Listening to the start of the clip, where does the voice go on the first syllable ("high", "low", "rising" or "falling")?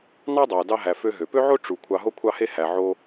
high